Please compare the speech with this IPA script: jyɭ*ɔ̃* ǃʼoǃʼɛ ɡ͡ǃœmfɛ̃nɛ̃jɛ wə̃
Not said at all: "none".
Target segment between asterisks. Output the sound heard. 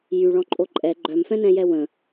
ɔ̃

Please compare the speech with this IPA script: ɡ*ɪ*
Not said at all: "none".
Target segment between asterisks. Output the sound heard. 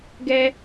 ɛ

